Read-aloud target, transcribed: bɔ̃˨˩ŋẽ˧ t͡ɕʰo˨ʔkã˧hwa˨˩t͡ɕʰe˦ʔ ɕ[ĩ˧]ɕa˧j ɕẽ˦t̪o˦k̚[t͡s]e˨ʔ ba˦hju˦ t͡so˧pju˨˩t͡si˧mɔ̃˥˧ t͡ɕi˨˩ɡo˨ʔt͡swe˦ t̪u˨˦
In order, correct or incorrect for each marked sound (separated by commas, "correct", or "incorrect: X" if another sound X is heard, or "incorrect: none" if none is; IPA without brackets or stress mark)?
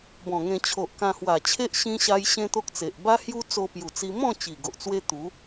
correct, correct